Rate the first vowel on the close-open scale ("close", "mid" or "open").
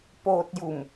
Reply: mid